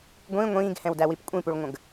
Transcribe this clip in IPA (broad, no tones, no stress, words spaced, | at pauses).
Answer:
ɡʷĩ ŋʷĩːɡhɛ̃wdæwip kʷʼĩpuɭŋʷə̃ɡ